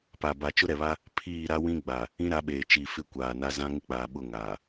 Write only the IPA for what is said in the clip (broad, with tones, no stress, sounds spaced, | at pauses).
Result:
p a˨ b a˨ t͡ʃ ʊ˦ ɾ ɛ˨ β a˦ | pʰ iː˦˨ ɾ a˦ w ĩ˦ ɡ͡b a˨ | ĩ˦ ɾ a˨˦ ɓ eː˨ t͡ʃ i˨ f ɪ˦ kʷ aː˨ n a˦ z ã˦ ŋ ɪ˦ k͡p aː˨ ɓ ʊ˦˨ ŋ a˨